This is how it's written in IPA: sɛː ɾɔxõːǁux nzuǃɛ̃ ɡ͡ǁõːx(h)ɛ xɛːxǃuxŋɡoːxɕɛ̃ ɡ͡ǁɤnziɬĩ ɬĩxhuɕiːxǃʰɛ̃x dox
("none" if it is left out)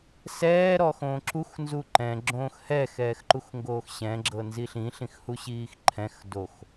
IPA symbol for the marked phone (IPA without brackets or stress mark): h